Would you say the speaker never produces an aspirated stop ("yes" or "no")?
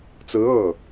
yes